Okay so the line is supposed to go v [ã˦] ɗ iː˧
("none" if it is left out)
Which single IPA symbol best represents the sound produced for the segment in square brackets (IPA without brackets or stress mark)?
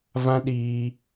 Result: ã˦